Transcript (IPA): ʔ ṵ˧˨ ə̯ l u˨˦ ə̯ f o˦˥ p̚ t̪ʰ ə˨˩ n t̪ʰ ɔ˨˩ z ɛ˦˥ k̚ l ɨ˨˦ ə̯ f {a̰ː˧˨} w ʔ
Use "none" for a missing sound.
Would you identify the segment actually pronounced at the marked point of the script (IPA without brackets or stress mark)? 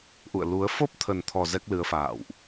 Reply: a̰ː˧˨